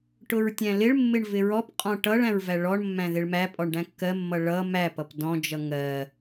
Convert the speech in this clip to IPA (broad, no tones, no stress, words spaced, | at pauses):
ʈʊɹtʲæ̃lɪɭmːɪɳ vɪɹɔpqʼɔ̃ ʈʌɭ æ̃ɹvæɭɔɳmːæ̃ ðɪɭmæpʼɔɳ ɖæ̃kːɜmːʌ ɭʌ mæpʌp dɔ̃d͡ʒʌ ŋɜ